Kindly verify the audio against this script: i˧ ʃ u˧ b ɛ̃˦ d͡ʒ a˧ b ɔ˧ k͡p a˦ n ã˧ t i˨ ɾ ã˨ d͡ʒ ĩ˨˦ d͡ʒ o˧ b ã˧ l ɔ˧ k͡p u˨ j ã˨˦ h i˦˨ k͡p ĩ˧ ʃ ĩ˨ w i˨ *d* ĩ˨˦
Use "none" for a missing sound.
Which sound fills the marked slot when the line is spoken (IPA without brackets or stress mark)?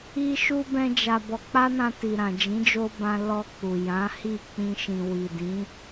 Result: d